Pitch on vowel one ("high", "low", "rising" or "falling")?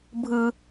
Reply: high